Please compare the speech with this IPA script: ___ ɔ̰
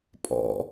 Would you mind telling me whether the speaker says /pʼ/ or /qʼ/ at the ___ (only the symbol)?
pʼ